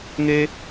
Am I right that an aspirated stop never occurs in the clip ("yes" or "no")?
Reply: yes